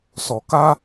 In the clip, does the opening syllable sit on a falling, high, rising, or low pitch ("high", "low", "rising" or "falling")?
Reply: low